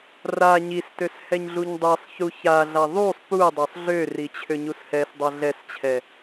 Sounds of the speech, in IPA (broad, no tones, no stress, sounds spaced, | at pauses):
r a ɲ i s t ø s h ɛ ɲ ɮ u ɲ dˤ i sˤ ç u ç a ɮ a ðˤ u sˤ p u dˤ ø sˤ ɮ ø r i t͡ɕʰ ø ɲ u s h ɛ s dˤ a ɮ ɛ s t͡ɕʰ ɛ